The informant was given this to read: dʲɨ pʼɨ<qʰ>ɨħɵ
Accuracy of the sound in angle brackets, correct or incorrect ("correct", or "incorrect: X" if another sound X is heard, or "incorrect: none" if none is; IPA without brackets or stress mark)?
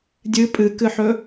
incorrect: k